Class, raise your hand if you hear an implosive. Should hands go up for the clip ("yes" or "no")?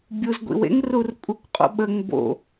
yes